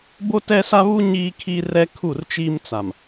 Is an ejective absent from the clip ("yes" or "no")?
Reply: yes